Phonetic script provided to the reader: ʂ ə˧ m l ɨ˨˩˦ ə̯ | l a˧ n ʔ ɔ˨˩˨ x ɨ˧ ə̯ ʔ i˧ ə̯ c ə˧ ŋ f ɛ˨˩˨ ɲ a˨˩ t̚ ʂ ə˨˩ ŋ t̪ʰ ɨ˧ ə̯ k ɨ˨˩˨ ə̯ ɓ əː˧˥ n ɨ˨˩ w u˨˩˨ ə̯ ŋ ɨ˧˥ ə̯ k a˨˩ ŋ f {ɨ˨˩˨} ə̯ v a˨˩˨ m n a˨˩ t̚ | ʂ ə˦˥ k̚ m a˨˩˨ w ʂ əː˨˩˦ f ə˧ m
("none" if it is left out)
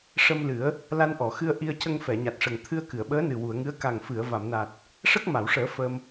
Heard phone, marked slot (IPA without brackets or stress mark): ɨ˨˩˨